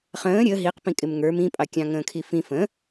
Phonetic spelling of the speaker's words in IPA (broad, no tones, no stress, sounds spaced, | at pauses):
χ ə̃ː ɾʲ ə ɦ i q p ĩ kʼ ɪ m ŋ ə˞ m ĩ pʼ ɑ kʲ ɑ̃ ŋ ə̃ː kʰ i f ĩ f ə̃